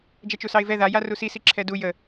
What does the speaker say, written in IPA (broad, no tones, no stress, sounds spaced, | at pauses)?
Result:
d͡ʒ ɛ t͡ʃ u s ɑ ɪ̯ v ɛ ð a j a r u s i s i ǁʰ ɛ d u j ə